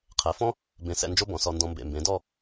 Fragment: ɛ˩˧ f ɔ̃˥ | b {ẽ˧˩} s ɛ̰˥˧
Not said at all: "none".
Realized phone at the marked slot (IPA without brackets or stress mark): ẽ˧˩